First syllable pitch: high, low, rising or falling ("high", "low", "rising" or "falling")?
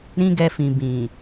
high